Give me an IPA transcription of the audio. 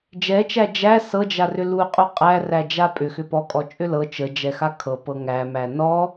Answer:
d͡ʒ ɛ t͡ʃ æ d͡ʒ æ s ɤ d͡ʒ a r ʏ l u qʼ u qʼ æ r æ d͡ʒ a pʼ ʏ x ʏ p ɔ kʼ ɔ t͡ʃʼ ʏ l ɤ t͡ʃ ə d͡ʒ ɛ x a kʰ ɤ p ɤ ŋ æ m æ n ɔ

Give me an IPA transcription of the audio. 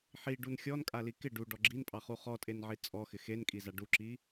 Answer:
ħ i ɖ u n xʲ ɔ n kʼ a l i k ɪ ɖ u ɖ ɔ ɡ͡ǁ i n pʼ ɑ χ u χ ɔ tʼ e n ʕ i t͡sʼ ɔ x ɪ x e n kʼ i z a ɖ u ǁ i

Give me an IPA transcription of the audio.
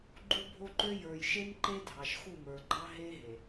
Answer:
ɡ͡ǃ u˦ bʱ o˦ ǃ ø˦ j ə˞˨ j ʃ e˦ n ǃ e˦ dʱ ɑ˨ ʃ x u˦˨ m ə˞˨ ɡ͡ǃ ɑ˦ ɦ e˦ ɦ e˨

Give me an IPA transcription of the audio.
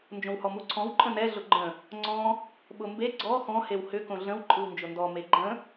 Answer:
n d͡ʒ õ w h ɔ m u ǀʰ ɔ̃ w ǃʼ ə̃ n ɛ ɮ ʊ ɡ͡ǃ ə̃ | ŋ͡ǀ ɔ̃ | ɓ ʊ m b e ɡ͡ǀ ɔ x ɔ̃ h e w h ʏ k õ ɮ ə̃ w ǃʼ ɯ w n d͡ʒ ʊ n d ɔ m e ɡ͡ǃ ə̃

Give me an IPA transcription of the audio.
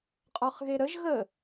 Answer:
qʼ ɔ χ ɣ e ɾ ə ʒ ɣ ə

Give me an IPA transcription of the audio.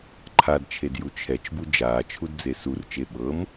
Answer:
ǃʰ a d t͡ʃʰ e d j u t͡ʃʰ ɛ t͡ʃ b u d͡ʒ aː t͡ʃʰ u d d͡z e s u r t͡ʃ e ɓ ɤ m

